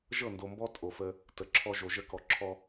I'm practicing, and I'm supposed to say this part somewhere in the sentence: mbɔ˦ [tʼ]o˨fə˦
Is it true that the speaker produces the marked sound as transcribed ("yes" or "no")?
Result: yes